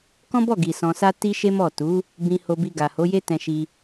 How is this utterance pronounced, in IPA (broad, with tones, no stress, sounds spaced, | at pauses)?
k ɔ̃˦ b ɔ˦˨ ɡ i˨ s ɔ̃˧ s a˦ t i˦ ʃ e˦ m ɔ˦˨ t u˨˦ | b ĩ˧ h o˧ b i˧ ɡ a˨ h o˨˦ j e˦ t ɛ̃˧ ʃ i˧